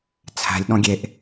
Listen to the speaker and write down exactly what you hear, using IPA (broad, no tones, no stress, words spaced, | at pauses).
t͡sʰæ̤lʲ ɗɔ̃ɡʲeʔ